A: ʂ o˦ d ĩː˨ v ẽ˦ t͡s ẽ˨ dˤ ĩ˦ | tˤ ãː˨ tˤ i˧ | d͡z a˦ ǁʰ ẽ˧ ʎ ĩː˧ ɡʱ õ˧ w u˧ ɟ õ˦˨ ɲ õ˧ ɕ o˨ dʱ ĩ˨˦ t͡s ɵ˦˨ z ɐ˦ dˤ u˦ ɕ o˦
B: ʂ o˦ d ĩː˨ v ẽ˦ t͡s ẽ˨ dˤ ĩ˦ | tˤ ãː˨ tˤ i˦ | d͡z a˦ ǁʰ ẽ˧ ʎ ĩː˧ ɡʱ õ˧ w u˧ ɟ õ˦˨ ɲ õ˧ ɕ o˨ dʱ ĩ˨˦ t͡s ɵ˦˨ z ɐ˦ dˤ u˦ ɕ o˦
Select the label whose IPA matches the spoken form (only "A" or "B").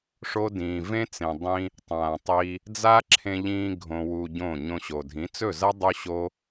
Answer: A